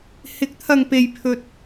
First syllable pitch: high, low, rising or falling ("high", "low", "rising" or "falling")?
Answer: rising